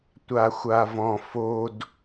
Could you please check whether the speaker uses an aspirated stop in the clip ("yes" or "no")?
no